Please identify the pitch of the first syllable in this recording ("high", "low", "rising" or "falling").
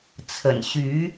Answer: low